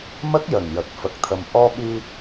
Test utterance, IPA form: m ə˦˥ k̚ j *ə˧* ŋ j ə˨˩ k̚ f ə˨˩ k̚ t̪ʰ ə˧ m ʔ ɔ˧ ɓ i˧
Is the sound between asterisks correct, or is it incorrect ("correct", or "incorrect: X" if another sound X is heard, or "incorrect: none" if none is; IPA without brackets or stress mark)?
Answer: incorrect: ə˨˩